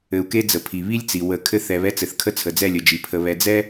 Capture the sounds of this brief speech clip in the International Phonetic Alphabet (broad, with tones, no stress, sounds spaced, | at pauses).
ɘ˨ u̯ k e˦ d͡z ə˨ pʰ i˨ β i˦ lʲ t͡s i˨ w ə˨˦ kʰ ɘ˦ θ ɛ˨ β ɛ˦ t͡s ɘ˨ θ kʰ ə˦ t͡sʰ ə˨ d͡z ɛ˦˨ lʲ ə˨ d͡ʒ i˨ pʰ ə˨ β ɛ˨ d͡z ɛ˦